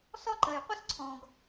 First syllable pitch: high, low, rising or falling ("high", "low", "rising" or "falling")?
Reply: high